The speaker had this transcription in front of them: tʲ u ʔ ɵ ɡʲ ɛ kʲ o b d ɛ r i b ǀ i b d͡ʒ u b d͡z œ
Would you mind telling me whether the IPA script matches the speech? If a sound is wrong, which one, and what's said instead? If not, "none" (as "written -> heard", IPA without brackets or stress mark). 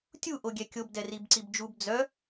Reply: ɵ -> o